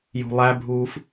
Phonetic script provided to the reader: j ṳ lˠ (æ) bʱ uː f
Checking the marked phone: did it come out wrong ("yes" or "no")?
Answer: no